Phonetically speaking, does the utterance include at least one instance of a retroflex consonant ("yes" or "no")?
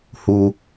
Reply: no